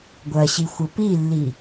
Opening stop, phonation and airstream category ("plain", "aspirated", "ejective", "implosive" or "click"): plain